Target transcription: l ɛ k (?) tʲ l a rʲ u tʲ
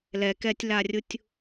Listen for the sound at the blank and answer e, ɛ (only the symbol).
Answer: ɛ